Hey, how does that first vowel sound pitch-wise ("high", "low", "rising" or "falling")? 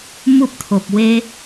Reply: high